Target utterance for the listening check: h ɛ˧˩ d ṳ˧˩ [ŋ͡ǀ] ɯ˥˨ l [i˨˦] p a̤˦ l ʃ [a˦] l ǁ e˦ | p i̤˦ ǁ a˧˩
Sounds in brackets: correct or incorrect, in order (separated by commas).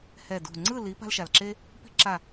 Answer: correct, correct, incorrect